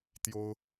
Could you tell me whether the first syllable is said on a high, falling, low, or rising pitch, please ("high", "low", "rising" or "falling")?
high